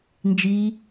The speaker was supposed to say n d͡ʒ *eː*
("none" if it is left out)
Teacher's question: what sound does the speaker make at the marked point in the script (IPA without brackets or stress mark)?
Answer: iː